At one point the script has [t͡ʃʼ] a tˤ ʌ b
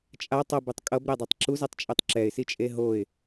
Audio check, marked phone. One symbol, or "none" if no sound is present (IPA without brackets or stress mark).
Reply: t͡ʃʼ